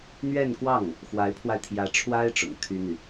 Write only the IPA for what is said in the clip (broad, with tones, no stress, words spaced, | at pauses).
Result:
n̪ɥɛ˥˧nkwɑ˥˩ŋ | xwa˧˥ɪ̯pʰwa˧ɪ̯t̪ʰjä˧˥ʈ͡ʂʰwa˥ɪ̯ ʈ͡ʂʊ̰˨˩ŋt̪ʰy˥n̪y˨